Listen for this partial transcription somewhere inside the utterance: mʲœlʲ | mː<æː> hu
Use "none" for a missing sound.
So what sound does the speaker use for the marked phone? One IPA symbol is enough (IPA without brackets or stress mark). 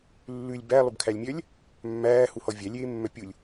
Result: æː